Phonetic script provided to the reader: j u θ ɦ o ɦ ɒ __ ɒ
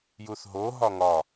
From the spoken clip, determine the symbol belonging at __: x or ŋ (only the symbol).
ŋ